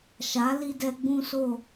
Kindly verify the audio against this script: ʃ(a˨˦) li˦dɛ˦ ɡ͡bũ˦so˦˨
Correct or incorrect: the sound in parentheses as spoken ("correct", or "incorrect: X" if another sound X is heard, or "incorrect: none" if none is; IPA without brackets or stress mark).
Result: correct